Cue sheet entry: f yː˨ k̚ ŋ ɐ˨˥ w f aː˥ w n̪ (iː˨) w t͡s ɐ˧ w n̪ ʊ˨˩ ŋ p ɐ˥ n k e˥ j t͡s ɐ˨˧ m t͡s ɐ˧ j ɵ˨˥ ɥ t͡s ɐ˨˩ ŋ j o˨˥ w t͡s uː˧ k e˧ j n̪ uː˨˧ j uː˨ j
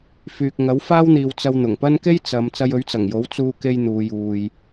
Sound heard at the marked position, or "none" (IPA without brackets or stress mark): iː˨